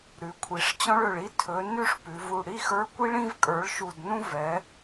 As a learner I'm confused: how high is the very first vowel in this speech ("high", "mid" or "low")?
high